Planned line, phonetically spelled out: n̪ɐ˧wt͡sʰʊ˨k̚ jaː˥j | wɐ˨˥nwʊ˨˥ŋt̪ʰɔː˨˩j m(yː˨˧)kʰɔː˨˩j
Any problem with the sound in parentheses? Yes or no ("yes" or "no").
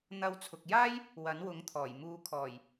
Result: yes